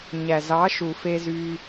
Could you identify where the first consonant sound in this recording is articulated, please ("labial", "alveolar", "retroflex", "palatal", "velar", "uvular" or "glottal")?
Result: palatal